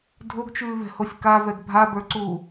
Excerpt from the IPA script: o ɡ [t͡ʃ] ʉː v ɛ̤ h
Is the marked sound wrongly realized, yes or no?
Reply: no